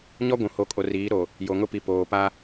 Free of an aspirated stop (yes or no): yes